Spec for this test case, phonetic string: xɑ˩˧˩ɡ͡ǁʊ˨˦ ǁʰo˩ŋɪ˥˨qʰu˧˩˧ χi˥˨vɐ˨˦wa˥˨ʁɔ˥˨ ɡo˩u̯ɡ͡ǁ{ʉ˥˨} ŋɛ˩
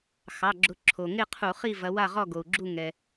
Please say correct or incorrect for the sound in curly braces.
incorrect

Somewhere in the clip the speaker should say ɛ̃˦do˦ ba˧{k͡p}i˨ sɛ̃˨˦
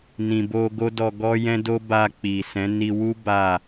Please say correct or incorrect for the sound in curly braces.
correct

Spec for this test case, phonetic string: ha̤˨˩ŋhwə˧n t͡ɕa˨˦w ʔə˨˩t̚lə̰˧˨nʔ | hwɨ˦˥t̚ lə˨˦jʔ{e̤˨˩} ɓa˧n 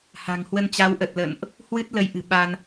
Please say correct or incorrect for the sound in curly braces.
incorrect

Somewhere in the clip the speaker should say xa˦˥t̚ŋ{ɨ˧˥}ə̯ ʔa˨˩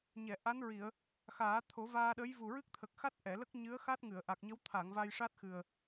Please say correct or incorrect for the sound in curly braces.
incorrect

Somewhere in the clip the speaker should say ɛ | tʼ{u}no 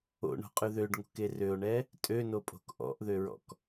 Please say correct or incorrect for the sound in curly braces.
incorrect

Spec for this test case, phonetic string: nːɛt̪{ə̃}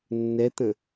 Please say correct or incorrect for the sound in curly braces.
correct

